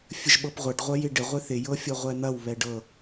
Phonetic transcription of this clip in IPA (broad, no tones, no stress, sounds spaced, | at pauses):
fʲ ə ʒ ɓ ɤ p ʁʷ ɐ ɖ ʁʷ ɐ j ɪ ɖ ɪ ʁʷ ɪ θ ɪ j ɤ fʲ ɤ ʁʷ ɛ n̪ ɐ w β ɛ ɖ ɤ